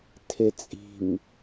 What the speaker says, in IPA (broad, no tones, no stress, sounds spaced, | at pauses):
tʰ e t͡sʼ i̤ m